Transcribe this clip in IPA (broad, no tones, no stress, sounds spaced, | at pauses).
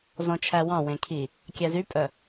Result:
z ɔ̃ t͡ʃʰ æ w ɑ̃ w ẽ kʰ i | kʲ æ z y pʼ œ